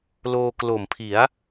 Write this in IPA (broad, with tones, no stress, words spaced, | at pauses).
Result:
loː˧klo˨˩mpʰi˩˦a̯